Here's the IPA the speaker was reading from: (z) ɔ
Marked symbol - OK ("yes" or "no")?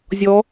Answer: no